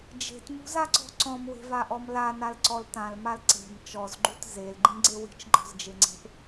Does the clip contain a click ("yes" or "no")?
yes